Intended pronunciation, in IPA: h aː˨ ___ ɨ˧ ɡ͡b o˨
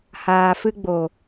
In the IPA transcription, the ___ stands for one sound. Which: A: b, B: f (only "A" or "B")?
B